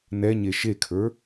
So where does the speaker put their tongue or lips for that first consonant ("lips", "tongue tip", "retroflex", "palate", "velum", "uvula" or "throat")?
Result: tongue tip